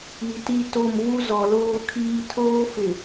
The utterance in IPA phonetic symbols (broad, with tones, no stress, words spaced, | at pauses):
i˨ti˦to˦˨m vu˦zɔ˨loː˦kʰiː˦ tʰoː˦fɪ˨